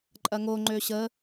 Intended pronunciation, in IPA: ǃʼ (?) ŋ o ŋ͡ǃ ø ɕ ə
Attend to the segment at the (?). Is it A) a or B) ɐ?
B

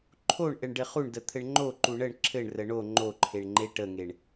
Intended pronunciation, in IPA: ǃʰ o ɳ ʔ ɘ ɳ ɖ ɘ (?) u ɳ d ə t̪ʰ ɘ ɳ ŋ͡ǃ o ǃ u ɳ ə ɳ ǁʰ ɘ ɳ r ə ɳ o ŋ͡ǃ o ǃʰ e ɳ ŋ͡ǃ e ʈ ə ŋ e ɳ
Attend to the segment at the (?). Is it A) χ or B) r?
A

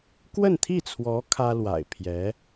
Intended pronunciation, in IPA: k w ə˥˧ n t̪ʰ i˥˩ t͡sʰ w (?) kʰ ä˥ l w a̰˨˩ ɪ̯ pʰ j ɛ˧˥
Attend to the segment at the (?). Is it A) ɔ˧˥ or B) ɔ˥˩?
A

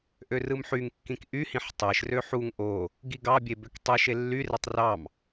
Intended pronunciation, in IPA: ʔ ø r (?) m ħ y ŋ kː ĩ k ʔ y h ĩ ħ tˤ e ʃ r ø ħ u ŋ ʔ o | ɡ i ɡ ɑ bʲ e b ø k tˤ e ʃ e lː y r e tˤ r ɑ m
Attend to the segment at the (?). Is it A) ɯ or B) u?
A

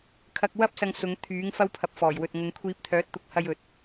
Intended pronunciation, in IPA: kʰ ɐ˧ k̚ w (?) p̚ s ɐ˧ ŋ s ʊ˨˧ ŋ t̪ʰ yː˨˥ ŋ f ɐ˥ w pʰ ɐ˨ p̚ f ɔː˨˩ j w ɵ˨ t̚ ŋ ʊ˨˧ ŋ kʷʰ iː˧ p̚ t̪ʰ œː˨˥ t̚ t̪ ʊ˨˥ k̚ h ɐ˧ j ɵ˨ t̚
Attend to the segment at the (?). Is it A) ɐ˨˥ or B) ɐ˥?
B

